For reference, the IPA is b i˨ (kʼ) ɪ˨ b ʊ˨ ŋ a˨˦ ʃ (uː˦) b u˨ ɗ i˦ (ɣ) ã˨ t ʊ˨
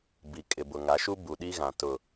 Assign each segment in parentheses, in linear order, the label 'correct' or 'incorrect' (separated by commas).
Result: correct, incorrect, correct